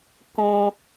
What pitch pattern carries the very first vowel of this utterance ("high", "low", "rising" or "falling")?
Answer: high